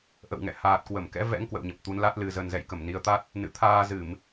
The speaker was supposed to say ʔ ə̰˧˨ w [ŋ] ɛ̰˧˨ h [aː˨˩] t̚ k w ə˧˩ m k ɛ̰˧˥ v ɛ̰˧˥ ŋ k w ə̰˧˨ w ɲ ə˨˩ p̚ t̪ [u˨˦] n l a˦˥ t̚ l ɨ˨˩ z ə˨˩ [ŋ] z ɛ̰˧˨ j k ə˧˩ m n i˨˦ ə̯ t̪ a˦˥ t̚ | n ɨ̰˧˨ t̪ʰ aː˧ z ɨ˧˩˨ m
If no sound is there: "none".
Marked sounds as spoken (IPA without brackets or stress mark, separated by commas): ŋ, aː˨˩, u˨˦, n